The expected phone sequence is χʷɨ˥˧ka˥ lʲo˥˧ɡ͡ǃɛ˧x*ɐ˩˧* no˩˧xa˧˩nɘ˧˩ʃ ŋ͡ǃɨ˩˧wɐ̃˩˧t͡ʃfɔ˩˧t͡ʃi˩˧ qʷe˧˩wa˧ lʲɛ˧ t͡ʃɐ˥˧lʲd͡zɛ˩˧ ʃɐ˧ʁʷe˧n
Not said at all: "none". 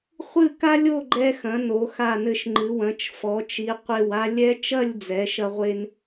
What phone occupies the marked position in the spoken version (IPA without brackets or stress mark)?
ɐ̃˩˧